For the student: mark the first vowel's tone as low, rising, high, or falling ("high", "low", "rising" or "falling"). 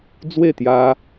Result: falling